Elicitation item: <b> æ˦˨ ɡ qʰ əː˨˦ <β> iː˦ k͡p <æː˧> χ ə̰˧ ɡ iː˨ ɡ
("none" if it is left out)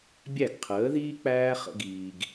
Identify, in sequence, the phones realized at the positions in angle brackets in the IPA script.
bʲ, ð, æː˦

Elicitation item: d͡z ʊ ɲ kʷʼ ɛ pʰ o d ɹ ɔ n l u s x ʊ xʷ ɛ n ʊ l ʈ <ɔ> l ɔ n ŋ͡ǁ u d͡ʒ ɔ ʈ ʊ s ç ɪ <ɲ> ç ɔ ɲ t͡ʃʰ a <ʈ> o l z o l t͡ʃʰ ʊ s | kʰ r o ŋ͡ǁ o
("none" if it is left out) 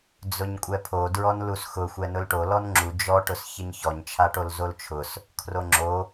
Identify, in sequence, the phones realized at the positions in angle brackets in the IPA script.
o, ɲ, ʈ

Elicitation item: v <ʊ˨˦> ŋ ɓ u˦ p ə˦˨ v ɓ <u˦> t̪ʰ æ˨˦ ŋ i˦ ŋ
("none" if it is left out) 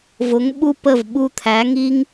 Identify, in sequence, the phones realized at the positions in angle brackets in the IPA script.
ʊ˨˦, u˧

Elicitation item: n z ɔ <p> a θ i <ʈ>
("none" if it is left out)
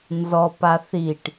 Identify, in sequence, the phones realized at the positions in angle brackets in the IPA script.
p, ʈ

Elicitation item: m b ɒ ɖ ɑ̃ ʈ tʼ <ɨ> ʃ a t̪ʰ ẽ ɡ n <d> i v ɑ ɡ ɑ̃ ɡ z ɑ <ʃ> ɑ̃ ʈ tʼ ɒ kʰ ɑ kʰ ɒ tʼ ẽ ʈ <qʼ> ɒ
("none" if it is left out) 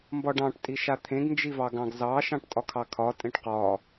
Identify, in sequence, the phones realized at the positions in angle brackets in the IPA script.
i, d͡ʒ, ʃ, q

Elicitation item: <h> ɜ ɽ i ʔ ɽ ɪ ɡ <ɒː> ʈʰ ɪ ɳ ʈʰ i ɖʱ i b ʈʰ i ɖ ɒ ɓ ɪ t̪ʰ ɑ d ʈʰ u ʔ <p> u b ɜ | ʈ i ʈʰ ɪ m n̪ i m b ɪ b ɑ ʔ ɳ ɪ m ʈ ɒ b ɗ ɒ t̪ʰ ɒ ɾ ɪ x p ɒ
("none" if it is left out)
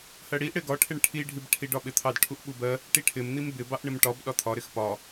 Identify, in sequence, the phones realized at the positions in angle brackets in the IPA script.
h, ɒ, ɓ

